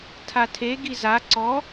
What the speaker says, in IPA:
tʰ a tʰ e ɡ i z a ǀ ɔ

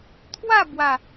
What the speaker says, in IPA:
t̪ʰ w a˥˧ b w a˨˩

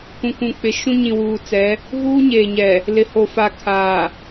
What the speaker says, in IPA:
kʷ ũ˨ kʷ ũ˨ k͡p ɪ˨ ʃ ũ˦ ɲ ĩ˨ w uː˨ t͡s ɛ˨˦ | ɣ uː˦ ɲ eː˨ ɲ ɛ˨ | l ɪ˨ h o˨ f a˨ kʰ aː˨

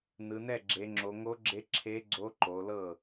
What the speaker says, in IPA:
n ɯ˩˧ n ɛ˥˩ ɡ͡ǁ e˩˧ ŋ͡ǁ o˩˧ ŋ o˧˥ ɡ͡ǁ e˧˥ ǁʰ e˧˥ ɡ͡ǀ o˧˥ ǃ o˩˧ l ɤ˥˩

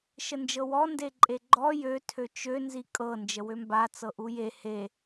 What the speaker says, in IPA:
ʃ ə n d͡ʒ ɤ w ɔ n d e ǃʼ e ɡ͡ǃ ɔ j ø tʰ ø t͡ʃ ø n z i kʼ ɤ n d͡ʒ ə w ø m b a t͡s ɤ ʔ u j e h e

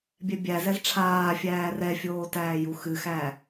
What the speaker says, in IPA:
bʲ ɛ bʲ æ z ɛ z ʈ͡ʂʰ aː fʲ æː r ɛ fʲ oː t æː j u x ɨ x æ

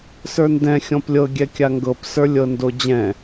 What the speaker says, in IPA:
s ə˞ n d ɛ̃ xʲ ɔ̃ p lʲ ɤ ɡʲ ɛ kʲ a ŋ ɡ ɤ p s ə˞ lʲ ɤ n d o d͡ʑ ɛ̃

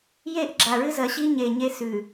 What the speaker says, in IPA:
j e˦˨ ʔ ɡ͡ǁ a˨ ɹ ɨ˦ z ɐ˨ ɕ i˦ ɲ e˨ ɲ e˦ s ʉ˨

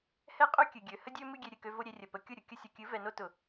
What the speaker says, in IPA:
h ɛ˦ qʼ ø˦ kʲ ɨ˨ ɡʲ ø˨ h ə˦ dʲ ø˦ m ɨ˦ ɡʲ e˧ ɾʲ ɨ˨ k ø˧ v o˦ ɾʲ e˧ rʲ ə˨ p ə˧ kʲ ʊ˦˨ ɾʲ ʊ˨ kʲ ə˧ sʲ ʊ˨ kʲ ɨ˨˦ v ɛ˧ n o˦ t ʊ˨

